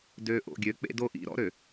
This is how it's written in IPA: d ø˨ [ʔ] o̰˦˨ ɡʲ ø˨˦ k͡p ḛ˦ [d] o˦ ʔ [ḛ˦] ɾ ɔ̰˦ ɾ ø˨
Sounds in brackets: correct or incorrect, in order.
correct, correct, incorrect

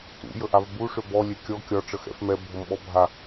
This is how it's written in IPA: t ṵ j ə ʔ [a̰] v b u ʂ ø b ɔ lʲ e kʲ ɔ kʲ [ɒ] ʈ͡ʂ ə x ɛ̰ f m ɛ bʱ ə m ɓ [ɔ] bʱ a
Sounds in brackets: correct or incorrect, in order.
incorrect, correct, correct

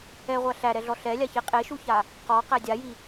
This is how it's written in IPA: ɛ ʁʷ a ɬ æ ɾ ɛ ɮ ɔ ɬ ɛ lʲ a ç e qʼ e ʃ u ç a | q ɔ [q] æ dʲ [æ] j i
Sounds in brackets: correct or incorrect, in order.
correct, incorrect

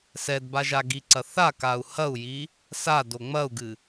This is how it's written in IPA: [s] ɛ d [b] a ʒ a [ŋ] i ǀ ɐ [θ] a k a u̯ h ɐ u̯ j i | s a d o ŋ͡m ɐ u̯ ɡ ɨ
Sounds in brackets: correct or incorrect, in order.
correct, correct, incorrect, correct

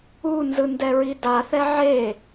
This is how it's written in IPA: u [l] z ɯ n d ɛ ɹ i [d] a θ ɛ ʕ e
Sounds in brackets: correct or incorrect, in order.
incorrect, correct

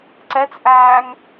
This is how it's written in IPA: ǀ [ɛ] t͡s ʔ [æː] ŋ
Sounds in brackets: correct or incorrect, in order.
correct, correct

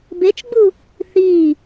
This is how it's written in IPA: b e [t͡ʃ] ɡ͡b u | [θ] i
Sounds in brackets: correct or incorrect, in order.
correct, correct

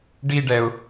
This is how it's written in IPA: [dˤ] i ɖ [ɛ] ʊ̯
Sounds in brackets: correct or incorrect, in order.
incorrect, correct

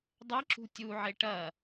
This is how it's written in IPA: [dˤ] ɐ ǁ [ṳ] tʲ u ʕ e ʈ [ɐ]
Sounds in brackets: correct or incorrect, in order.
correct, correct, correct

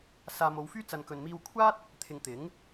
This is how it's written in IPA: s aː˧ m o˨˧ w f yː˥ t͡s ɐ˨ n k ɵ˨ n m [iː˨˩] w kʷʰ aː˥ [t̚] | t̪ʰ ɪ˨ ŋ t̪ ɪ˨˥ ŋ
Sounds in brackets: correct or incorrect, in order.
incorrect, correct

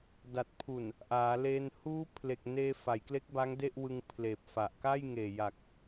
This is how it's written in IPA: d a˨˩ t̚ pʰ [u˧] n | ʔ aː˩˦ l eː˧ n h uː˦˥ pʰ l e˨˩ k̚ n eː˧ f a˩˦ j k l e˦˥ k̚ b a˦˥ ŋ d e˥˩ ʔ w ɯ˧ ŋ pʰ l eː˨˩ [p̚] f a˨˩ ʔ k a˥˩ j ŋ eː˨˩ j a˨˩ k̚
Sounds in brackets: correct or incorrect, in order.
incorrect, correct

